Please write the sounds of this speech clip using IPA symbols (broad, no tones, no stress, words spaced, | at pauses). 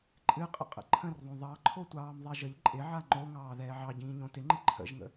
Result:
ǃʼɨqʼə̰qʼə̰ ǃʰə̃rðˤõ ðˤɑǃʰotʷɑːm ðˤɛʒəʎ ǃʼɪʕa ŋ͡ǃoŋɑː ðɛːʕɑ ɟĩːɲõtɪŋ͡ǃɪ ǃʰə̰ʒŋə̰